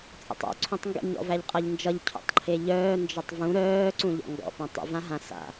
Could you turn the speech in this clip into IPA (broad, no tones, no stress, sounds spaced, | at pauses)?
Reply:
t͡sʼ ə̰ tˤ ɔ̰ ǀʰ ũ tˤ ŋ ɡ ə̰ ɲ ɔ̰ v æ ʎ qʼ ʌ ʎ n d͡ʒ ʌ ʎ cʰ ṵ tˤ ǃʰ e ʎ œː n d͡ʒ ʌ tˤ v ũ ɾ œː ǀ ũ ʎ ɔ̰ ŋ ɡ ɔ̰ p ã tˤ ə̰ v ã ɦ ã s a̰